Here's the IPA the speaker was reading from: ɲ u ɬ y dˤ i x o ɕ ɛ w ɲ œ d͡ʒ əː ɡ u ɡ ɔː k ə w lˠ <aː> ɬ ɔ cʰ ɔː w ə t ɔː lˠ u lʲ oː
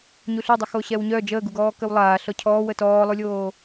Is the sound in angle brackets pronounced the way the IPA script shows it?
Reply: yes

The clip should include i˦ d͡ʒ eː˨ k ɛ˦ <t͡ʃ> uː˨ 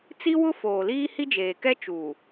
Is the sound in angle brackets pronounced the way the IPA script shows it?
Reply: yes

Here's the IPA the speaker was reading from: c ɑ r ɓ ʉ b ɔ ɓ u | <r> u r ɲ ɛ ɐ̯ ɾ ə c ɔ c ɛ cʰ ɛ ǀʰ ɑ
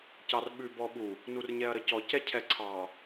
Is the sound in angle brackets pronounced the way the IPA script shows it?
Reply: no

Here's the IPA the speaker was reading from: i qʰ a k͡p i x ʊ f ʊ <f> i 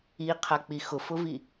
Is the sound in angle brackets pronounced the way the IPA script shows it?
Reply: no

